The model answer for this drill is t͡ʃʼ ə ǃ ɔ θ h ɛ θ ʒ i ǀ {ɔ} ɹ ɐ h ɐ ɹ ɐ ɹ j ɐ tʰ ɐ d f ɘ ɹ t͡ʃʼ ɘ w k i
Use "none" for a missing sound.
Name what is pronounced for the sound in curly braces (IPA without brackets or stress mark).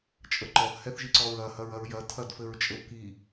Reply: ɔ